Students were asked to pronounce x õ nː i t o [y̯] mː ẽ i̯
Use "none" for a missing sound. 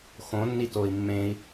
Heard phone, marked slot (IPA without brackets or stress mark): i̯